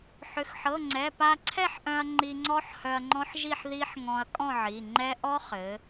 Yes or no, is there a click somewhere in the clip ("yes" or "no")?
yes